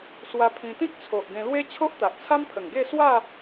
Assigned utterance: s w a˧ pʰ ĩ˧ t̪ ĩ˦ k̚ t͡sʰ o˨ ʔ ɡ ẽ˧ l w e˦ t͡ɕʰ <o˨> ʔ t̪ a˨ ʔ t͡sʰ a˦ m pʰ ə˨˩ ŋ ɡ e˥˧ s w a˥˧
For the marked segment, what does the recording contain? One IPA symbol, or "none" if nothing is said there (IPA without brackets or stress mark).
o˦